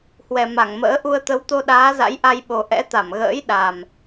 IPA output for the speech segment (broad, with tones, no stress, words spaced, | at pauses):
hwɛ˨˩ma˧˩ŋmə̰ː˧˥ ʔu˧ə̯t̪ə˨˦w t̪o˧ɗaː˨˦za̰˧˥j ʔa˧jɓo˨˩ʔɛ̰˧˥t̪a˧˩m ɣə̰ː˧˥jɗa˨˩m